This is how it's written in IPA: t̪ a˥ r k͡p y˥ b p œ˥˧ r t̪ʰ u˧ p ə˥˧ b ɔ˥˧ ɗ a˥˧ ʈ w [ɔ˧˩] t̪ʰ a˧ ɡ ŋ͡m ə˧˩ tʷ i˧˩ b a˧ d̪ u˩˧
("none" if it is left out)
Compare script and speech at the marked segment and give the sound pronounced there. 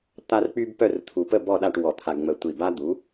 ɔ˧˩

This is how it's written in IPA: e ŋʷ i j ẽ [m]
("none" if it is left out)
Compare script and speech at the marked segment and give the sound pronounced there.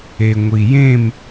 m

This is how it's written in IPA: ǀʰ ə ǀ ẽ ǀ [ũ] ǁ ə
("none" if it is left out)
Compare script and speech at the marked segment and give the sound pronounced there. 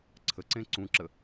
ũ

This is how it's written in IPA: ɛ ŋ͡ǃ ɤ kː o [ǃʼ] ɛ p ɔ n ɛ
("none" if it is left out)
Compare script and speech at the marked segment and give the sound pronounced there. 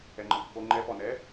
ŋ͡ǃ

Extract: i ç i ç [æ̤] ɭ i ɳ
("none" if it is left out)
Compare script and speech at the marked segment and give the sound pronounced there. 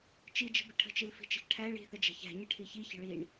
ə̤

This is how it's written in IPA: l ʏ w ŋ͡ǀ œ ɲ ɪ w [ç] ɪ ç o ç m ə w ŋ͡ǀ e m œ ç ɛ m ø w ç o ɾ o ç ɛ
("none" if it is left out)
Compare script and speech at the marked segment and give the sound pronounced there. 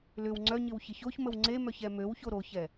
ç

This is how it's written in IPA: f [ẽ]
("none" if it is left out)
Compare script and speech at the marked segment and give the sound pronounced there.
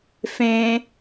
ẽ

